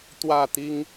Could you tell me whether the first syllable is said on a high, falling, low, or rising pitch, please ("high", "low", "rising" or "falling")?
falling